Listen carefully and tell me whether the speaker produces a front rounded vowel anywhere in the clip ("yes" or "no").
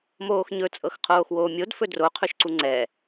no